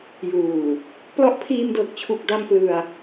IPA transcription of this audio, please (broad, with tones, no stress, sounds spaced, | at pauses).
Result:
j uː˨˩ | p l ɔ˦˥ ʔ pʰ iː˧ m d ɤː˨˩ k̚ t͡ɕʰ u˨˩ k̚ d a˧ m p l ɯ˧ a̯